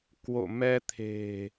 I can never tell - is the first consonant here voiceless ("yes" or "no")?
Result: yes